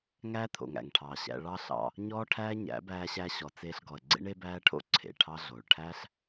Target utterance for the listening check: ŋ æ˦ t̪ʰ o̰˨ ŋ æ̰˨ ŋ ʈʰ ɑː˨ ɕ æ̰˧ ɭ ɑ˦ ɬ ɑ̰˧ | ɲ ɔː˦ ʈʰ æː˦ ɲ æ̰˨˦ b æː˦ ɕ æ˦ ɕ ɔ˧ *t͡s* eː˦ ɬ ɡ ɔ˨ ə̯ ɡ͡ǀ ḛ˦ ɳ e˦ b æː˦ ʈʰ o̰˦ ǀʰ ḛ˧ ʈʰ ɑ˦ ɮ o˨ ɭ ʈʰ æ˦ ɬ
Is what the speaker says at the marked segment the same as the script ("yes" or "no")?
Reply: yes